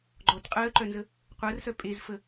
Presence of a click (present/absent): present